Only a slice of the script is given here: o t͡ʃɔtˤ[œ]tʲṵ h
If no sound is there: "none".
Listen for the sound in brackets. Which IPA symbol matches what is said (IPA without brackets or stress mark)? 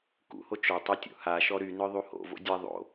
œ